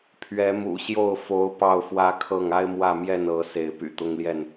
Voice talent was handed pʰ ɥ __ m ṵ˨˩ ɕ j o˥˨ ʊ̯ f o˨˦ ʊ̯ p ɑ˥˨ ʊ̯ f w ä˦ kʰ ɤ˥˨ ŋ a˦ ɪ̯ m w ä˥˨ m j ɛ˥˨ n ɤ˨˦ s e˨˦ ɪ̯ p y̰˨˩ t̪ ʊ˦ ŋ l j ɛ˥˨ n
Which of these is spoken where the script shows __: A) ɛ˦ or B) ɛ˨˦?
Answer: B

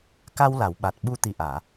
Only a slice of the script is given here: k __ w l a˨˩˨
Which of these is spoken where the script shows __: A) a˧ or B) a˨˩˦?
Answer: A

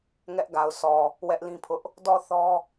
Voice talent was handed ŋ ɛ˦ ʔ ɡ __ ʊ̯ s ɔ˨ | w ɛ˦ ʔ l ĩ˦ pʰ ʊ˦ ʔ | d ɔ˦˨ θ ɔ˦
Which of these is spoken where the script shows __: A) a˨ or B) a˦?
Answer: A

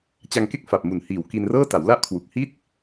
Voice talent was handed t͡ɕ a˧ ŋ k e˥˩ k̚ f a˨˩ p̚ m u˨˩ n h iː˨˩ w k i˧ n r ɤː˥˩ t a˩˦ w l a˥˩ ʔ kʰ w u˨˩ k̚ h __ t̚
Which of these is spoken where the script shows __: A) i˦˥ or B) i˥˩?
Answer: B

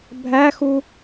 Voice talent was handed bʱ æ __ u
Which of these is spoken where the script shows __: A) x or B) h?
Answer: A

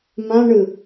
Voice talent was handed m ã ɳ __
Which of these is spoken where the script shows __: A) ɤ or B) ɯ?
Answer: B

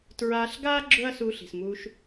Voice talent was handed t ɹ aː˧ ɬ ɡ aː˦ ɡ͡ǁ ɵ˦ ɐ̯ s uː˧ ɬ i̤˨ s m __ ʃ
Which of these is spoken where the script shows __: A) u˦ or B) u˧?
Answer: B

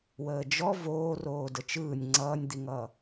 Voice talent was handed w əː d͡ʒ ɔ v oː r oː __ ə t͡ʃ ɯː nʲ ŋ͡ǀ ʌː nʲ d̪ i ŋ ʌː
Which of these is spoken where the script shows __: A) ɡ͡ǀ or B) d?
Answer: B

